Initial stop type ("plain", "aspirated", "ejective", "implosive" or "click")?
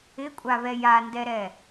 ejective